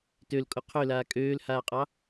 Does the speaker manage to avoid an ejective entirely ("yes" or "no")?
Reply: no